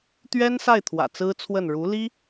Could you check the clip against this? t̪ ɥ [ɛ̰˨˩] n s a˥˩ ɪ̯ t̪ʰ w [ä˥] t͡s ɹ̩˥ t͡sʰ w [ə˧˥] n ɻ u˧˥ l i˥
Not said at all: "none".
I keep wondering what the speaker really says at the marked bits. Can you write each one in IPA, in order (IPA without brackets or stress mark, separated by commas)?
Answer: ɛ˥, ä̰˨˩, ə˥˩